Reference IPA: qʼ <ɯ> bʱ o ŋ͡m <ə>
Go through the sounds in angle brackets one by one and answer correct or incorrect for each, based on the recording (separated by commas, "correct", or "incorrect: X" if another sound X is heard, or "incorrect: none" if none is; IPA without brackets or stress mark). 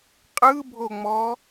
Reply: correct, incorrect: ɔ